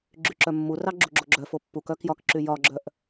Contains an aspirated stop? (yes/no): no